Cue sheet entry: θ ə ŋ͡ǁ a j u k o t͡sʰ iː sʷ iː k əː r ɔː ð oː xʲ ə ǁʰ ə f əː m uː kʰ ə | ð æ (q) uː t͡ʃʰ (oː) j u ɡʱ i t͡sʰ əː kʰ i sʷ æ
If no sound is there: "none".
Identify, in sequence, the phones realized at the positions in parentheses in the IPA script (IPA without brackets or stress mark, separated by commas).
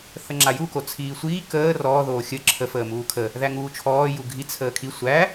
ŋ, ɔː